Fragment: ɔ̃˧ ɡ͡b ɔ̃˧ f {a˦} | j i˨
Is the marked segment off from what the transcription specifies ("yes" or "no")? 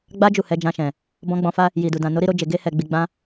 no